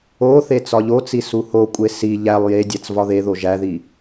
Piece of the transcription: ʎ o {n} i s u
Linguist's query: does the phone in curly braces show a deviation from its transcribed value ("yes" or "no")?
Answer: yes